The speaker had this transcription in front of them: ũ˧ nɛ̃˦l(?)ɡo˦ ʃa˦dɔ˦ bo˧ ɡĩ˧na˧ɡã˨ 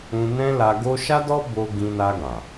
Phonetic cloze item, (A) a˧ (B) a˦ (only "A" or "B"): A